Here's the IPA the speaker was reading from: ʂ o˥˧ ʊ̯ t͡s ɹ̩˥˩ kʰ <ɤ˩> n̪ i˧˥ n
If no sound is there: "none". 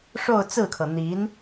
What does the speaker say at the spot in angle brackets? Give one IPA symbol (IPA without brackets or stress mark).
ɤ˩